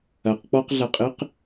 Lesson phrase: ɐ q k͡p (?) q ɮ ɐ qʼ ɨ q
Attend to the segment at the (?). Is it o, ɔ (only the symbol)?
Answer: ɔ